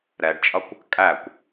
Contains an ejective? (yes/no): yes